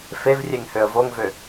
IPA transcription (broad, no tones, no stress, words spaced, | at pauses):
fevrʲeŋ høə̯voŋvø